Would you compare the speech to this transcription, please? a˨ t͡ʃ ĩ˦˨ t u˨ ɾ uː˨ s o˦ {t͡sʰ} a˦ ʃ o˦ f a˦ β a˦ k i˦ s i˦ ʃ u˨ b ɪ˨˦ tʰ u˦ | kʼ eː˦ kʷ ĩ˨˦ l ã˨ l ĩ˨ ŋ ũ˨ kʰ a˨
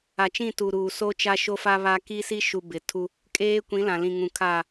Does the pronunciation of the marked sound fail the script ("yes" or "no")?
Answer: yes